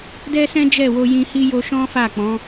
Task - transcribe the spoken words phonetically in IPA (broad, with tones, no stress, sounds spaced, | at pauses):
d ɛ˦ s ɛ̃˦ d͡ʒ ɛ˦˨ w o˧ j ĩ˧ h i˦ j o˧ ʃ ɔ̃˦ f a˦˨ k͡p ɔ̃˨˦